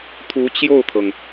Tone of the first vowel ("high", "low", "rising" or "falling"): rising